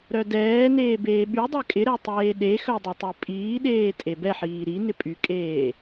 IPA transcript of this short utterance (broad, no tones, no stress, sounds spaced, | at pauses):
ɾ œ d ɛː n eː b eː ɓ y dˤ ɛ kʼ ɪ ɾ ɛ tˤ eː ɗ e x œ dˤ e tˤ e pʼ iː ɗ eː tʼ e b ɛ ħ iː ɾ i n ɪ pʼ y kʼ eː